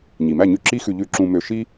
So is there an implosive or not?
no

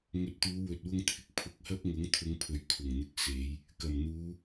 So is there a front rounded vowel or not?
no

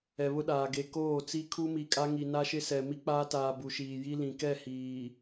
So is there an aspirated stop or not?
yes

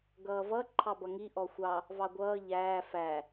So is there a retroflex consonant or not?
no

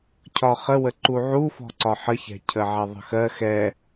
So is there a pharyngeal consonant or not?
yes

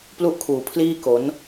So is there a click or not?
no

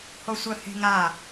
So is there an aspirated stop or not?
no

